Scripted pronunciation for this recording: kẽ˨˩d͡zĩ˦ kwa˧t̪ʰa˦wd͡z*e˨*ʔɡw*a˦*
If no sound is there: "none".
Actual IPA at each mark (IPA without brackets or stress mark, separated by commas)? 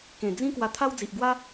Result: i˨, a˦